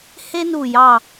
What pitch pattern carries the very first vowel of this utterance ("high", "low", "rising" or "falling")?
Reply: high